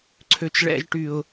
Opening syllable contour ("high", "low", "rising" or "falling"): low